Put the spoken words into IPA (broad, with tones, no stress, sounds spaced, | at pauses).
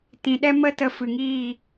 t ĩ˨ ɗ ɛ˦ m ə˦ t ə˧ f ɨ˨ ŋ iː˦˨